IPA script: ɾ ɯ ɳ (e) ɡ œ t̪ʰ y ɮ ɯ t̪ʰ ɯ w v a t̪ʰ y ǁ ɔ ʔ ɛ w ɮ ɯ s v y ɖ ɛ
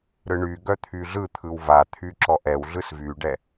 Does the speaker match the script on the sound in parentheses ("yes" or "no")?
no